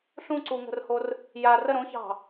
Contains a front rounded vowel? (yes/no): no